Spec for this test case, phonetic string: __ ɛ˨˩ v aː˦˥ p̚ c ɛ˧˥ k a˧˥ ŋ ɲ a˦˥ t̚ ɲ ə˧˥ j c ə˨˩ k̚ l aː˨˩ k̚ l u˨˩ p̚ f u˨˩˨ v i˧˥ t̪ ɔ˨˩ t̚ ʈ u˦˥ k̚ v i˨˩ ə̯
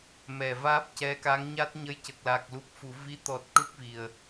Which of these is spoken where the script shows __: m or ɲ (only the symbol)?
m